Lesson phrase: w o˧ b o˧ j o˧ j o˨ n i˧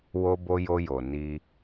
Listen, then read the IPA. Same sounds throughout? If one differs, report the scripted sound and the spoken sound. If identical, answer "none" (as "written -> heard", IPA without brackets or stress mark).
none